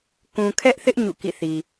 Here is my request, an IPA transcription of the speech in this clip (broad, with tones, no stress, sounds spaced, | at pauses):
k ũ˨ kʰ ɛ˦ ʔ θ ɪ˦ ʔ ɲ ṵ˦˨ k ḭ˦˨ θ i˨